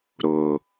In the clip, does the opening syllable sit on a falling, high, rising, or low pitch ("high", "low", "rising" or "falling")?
low